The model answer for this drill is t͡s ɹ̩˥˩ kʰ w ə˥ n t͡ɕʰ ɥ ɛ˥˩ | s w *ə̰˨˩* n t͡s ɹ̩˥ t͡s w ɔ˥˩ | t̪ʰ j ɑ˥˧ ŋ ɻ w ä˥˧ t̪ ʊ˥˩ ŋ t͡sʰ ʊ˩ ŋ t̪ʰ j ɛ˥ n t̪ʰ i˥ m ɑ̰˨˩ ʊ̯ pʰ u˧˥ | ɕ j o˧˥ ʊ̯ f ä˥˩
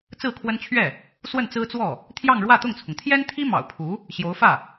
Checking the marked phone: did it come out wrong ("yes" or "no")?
yes